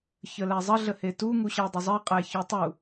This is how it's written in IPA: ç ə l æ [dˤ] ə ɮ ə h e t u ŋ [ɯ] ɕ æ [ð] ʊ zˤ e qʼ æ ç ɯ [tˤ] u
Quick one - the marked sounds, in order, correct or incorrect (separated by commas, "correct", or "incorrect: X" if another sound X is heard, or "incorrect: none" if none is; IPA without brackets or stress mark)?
incorrect: zˤ, incorrect: u, incorrect: dˤ, correct